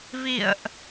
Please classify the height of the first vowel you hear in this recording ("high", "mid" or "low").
high